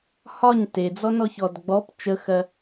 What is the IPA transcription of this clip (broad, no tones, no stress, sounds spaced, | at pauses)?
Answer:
h ɒ ɲ t e d͡z ɔ n ɔ ç ɔ d ɡ͡b ɔ p t͡ʃ ə x ɜ